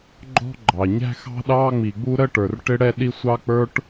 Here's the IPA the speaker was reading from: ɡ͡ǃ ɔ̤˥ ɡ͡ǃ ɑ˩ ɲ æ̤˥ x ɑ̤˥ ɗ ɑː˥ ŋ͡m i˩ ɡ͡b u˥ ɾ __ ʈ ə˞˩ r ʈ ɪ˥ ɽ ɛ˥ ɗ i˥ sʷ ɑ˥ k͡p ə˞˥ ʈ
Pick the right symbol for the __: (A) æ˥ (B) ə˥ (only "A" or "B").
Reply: B